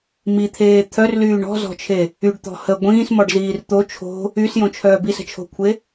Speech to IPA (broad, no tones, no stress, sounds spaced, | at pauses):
m i t̪ʰ eː t̪ʰ œ r l yː ɳ ɔ̤ z ɔ̤ t͡ʃʰ e | y ɖ t̪ ɔ̤ h ə ɡʷ ĩː s m ɔ ɖ z iː r t̪ o t͡ʃʰ o̤ | y s j õ t͡ʃʰ œː b i s ə̤ t͡ʃʰ o̤ kʷʰ e